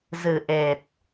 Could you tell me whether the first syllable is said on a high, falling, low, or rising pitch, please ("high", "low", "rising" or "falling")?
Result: low